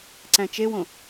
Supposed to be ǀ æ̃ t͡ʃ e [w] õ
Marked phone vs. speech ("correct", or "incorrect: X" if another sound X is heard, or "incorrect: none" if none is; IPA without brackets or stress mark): correct